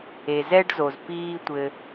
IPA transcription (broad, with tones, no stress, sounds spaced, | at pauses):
e˩ z ɛ˥ ɖ z o˩ z p iː˧ tʷ ɘ˩